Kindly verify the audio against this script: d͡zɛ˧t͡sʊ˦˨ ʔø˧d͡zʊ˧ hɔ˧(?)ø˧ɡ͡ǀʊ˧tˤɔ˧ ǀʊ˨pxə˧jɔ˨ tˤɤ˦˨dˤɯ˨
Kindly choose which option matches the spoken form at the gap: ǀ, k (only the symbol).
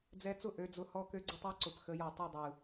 k